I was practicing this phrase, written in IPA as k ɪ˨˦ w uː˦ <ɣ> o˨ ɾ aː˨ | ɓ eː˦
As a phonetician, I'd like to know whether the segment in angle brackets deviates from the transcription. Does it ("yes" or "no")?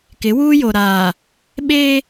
yes